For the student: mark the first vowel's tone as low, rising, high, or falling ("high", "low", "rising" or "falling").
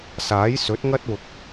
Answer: rising